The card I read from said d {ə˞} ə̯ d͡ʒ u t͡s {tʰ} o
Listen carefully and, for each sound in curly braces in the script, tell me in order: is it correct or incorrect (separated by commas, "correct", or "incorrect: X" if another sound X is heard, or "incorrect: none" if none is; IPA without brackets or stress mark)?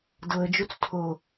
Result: incorrect: ɤ, correct